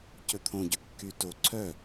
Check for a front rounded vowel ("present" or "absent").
present